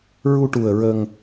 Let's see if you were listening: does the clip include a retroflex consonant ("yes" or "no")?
yes